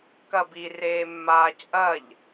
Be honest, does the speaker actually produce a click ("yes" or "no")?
no